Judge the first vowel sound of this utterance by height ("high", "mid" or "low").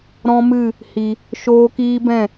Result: mid